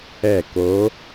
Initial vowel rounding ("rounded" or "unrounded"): unrounded